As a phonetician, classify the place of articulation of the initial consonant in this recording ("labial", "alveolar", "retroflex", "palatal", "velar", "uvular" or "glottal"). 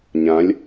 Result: palatal